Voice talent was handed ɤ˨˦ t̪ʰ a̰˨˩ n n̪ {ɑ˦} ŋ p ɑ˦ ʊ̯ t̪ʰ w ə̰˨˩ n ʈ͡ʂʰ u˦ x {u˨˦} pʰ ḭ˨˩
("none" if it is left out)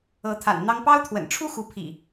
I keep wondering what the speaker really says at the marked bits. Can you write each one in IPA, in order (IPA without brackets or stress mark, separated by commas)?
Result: ɑ˦, u˨˦